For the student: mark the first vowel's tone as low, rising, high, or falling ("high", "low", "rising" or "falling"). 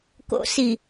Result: low